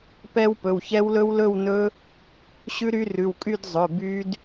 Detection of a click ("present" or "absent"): absent